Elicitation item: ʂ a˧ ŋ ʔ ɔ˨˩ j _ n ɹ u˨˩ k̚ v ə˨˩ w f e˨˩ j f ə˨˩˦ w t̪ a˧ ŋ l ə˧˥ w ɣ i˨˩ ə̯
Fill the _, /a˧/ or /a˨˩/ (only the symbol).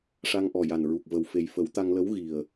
a˨˩